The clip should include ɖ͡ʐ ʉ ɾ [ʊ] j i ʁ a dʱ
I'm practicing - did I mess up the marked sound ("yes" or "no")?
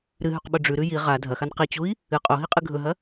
yes